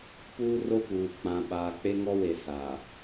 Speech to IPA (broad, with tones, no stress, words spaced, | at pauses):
puː˦ro˦puː˨ k͡pã˨ɓaː˨k͡pe˦ ŋɔ˦we˨ sa˨